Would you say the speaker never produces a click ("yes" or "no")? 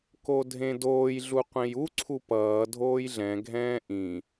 no